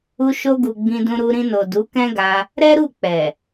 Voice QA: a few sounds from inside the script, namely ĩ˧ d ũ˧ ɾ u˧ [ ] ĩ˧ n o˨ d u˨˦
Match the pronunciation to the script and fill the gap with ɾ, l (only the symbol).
ɾ